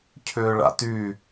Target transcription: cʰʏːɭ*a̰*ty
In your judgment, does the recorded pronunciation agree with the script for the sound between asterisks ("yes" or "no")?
yes